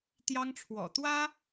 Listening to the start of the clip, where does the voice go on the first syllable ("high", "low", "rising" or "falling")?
high